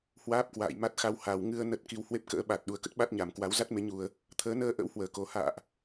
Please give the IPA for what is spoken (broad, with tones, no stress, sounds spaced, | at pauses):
h w aː˦˥ p̚ k w a̰ː˧˨ j m a˦˥ t̚ x a˧ w h a˨˩ w ŋ ɨ˧ ə̯ n ə˦˥ t̚ k i˧ w h w e˦˥ p̚ k ə̰ː˧˥ ɓ a˨˩ t̚ ɗ u˨˩ ə̯ k ə˦˥ t̚ ɓ a˦˥ t̚ ɲ a˧˩ m k w a˨˦ w z a˦˥ t̚ m e˨˦ ɲ u˨˩ ə̯ | t̪ʰ əː˨˦ n əː˧ ʔ ə̰˧˥ w h w əː˧˩ k o˨˩ h a̰ː˧˨ ʔ